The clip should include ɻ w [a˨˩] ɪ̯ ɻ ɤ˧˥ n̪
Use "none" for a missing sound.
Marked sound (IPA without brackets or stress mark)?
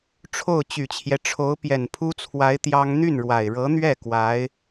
a˨˩